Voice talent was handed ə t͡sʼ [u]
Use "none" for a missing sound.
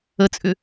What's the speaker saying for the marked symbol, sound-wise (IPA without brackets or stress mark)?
ʏ